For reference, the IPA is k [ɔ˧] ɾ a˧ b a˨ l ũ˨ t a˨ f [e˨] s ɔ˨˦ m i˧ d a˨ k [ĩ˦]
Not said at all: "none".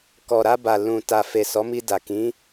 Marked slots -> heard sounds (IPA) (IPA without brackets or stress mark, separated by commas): ɔ˨, e˨, ĩ˨˦